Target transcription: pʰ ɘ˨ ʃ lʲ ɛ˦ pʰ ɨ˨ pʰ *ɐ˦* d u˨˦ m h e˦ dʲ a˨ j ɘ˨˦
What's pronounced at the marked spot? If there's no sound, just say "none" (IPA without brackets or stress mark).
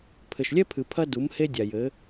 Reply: ɐ˦